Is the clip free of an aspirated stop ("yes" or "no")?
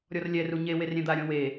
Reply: yes